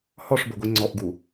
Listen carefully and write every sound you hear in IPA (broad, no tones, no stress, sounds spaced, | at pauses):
h ɔ ʂ b o ɡʷ i ŋ͡ǀ ɔ ʔ ɡ u